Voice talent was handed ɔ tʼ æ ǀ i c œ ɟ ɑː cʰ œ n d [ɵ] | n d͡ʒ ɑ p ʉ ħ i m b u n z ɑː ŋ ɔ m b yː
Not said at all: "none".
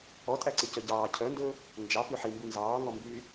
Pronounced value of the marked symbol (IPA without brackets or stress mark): ɵ